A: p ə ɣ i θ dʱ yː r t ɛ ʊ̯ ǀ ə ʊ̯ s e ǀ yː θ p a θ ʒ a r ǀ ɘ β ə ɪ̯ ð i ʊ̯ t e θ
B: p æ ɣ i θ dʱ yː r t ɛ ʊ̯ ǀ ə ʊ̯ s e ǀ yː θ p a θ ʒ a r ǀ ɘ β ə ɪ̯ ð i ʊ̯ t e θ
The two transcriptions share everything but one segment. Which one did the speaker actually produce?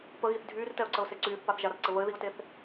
A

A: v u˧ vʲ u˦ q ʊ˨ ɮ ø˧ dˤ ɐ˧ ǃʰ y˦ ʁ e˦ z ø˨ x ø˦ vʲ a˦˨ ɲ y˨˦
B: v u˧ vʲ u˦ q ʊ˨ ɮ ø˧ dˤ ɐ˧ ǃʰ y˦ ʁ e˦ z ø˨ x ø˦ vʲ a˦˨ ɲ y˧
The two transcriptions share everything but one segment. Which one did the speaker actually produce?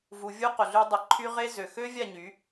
A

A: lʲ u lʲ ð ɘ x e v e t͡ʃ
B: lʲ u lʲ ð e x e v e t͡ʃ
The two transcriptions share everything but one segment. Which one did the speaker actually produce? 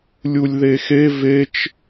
B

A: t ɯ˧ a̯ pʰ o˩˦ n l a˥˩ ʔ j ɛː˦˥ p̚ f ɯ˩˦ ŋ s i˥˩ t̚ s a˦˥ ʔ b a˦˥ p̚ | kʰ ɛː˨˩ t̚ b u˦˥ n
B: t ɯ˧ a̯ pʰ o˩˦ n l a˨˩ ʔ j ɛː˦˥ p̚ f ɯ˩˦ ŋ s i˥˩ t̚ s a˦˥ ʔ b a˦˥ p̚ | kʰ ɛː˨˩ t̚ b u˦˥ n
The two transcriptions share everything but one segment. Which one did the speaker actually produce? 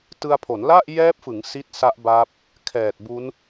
A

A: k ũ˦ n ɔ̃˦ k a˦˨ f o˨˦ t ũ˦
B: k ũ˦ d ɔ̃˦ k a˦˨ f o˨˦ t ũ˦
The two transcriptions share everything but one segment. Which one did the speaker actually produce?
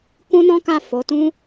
A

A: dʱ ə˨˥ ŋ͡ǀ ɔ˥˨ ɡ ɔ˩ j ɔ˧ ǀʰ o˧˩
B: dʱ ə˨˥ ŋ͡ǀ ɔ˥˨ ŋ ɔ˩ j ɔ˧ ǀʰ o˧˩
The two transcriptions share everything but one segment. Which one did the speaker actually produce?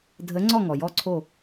B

